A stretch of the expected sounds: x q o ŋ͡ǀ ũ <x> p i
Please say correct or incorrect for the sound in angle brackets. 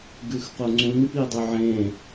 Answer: incorrect